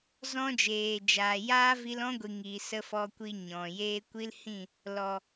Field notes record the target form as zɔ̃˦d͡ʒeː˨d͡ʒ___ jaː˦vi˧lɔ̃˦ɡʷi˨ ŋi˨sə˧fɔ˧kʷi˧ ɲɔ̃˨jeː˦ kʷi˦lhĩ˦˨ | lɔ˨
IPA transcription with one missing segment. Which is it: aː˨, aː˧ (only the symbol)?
aː˨